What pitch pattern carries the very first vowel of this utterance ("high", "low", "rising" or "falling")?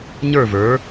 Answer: falling